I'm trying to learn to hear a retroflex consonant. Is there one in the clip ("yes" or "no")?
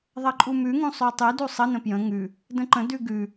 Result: no